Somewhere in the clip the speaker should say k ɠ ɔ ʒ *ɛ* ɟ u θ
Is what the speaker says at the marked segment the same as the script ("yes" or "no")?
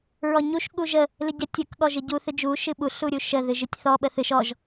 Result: no